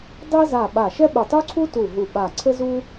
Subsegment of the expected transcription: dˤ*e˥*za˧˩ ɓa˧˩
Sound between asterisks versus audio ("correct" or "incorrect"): correct